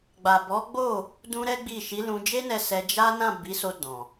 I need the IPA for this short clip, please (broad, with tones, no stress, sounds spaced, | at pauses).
ɡ͡b a˨ b ɔ˨˦ ɡ͡b o˦˨ | d ũ˦ ɾ ɛ˦ ɡ͡b i˦˨ ʃ i˨˦ l ũ˧ d͡ʒ e˦ n ɛ˧ s ɛ˧ d͡ʒ a˦ n ã˦˨ b i˨˦ s o˧ d ɔ̃˨